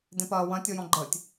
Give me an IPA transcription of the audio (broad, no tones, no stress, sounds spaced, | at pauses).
d ẽ p ɐː w ɐ̃ tʲ ɔ j ɔ̃ ɡ͡ǃ əː tʲ